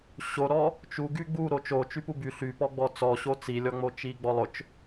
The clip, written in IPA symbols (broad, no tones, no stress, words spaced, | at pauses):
ɕoɾɔ | t͡ʃu ɡyɡ͡bu ɾot͡ʃo t͡ʃypuby ɬypɔɡ͡bɔ t͡sɔɕo t͡silʲɔŋ͡mot͡ʃi ɡ͡bɔlˠʊt͡ʃ